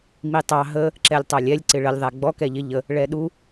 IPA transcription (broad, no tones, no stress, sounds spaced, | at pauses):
m i tˤ ɑ ɦ ə | ǁ ɛ lʲ tˤ ɑ lʲ ɛ lʲ ǀ ɪ ɭ ə lʲ ðˤ æ ɡ͡b ɔ k ɛ ʎ ɪ ʎ ə | ɭ ɛ ɗ u